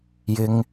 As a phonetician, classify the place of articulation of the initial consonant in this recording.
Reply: palatal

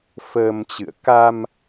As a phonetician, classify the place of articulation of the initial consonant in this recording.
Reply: labial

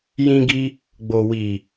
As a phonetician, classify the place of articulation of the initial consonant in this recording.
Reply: palatal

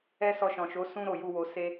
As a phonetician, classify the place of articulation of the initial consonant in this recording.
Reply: alveolar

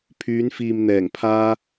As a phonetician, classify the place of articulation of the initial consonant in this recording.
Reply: labial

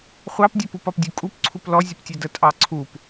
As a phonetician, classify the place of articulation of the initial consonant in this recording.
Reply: uvular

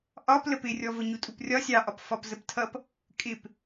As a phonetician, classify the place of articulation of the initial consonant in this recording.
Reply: glottal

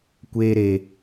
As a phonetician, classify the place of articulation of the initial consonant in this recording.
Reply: velar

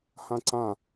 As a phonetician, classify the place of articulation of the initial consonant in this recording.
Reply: glottal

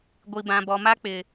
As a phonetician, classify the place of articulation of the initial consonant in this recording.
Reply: velar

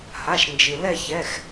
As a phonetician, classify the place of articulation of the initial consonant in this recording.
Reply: glottal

